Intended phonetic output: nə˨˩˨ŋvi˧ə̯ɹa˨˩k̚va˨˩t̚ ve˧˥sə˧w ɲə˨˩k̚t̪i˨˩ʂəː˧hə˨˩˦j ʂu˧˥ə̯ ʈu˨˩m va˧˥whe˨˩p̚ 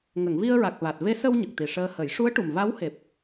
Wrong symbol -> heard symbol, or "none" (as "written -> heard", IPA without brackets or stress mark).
n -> ŋ